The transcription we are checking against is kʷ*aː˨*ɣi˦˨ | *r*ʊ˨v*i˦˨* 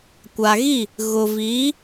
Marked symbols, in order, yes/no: no, no, no

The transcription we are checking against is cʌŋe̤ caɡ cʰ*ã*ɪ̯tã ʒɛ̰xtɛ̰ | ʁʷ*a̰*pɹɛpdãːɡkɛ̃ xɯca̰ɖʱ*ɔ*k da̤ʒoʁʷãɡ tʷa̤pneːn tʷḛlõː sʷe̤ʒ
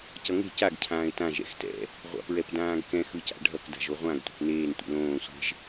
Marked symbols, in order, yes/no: no, yes, no

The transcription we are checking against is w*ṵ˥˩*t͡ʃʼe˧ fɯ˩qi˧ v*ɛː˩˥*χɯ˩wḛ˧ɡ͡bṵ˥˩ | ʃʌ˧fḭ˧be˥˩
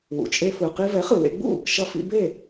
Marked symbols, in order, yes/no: no, no

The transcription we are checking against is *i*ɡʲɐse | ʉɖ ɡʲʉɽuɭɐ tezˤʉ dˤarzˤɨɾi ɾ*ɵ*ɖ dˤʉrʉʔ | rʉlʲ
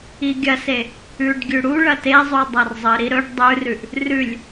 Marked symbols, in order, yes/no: yes, yes

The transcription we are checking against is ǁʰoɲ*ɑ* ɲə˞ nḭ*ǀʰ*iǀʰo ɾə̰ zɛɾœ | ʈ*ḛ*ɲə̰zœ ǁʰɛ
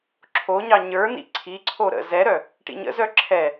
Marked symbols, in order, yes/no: yes, yes, no

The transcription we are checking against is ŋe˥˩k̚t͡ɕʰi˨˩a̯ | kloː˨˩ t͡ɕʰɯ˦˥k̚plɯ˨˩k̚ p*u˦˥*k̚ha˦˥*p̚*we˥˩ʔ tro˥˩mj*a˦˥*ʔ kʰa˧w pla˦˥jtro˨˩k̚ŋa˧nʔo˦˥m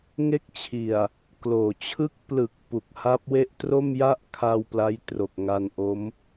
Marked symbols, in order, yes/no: no, yes, no

